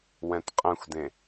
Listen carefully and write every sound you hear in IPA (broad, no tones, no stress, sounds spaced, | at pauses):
w ɛ̃ t qʼ ɛ̃ xʷ d ẽ